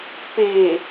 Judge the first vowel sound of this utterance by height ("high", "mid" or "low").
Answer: mid